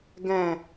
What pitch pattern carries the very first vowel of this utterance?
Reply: low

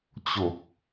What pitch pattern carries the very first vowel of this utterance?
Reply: low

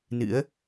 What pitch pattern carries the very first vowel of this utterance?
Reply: rising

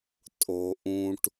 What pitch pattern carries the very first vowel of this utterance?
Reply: low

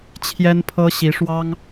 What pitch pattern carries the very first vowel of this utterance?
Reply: high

